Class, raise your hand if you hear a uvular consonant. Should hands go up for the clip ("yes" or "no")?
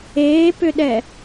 no